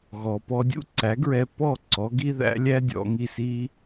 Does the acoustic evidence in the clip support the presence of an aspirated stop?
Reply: no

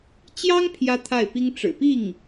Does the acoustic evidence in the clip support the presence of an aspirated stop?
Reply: yes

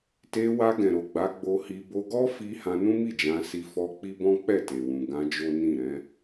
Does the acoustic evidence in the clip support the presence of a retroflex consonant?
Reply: no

